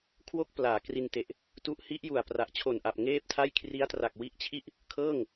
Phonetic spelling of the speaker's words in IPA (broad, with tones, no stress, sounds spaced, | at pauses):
kʰ w o˥˩ k̚ p l aː˩˦ k r i˧ n t e˨˩ ʔ | t u˦˥ ʔ h i˦˥ ʔ j u˨˩ a̯ p r a˨˩ ʔ t͡ɕʰ o˨˩ n ʔ a˨˩ p̚ ŋ eː˥˩ p̚ tʰ a˥˩ j kʰ r i˦˥ a̯ t r a˨˩ k̚ w i˦˥ ʔ t͡ɕʰ i˥˩ ʔ | kʰ ɤː˥˩ ŋ